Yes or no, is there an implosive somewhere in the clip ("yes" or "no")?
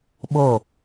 yes